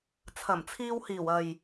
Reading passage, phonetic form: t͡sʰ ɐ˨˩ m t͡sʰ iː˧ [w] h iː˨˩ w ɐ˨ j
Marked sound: correct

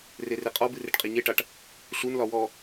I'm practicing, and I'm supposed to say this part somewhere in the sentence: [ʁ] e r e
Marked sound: incorrect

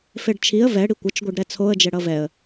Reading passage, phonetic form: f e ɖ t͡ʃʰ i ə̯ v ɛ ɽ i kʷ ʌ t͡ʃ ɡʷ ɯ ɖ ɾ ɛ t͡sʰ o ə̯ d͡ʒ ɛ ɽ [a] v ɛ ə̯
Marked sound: incorrect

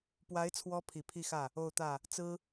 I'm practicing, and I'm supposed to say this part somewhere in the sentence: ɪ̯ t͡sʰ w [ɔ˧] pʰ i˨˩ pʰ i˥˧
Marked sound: incorrect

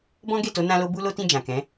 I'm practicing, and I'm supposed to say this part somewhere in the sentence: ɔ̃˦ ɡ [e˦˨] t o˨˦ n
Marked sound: correct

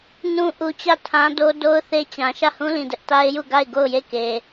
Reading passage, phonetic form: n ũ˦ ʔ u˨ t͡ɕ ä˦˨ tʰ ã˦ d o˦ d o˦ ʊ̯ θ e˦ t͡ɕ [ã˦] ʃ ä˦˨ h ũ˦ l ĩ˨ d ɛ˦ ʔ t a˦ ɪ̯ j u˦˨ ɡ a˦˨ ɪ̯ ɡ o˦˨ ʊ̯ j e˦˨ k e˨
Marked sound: incorrect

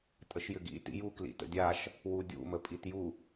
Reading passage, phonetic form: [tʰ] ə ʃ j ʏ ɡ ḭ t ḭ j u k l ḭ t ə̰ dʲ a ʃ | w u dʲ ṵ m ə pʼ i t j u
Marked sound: incorrect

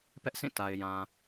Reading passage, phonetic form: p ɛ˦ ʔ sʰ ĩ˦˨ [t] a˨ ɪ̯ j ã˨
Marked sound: correct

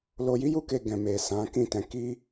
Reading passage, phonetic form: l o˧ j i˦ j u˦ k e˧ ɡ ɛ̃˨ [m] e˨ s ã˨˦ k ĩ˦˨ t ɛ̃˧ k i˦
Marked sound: correct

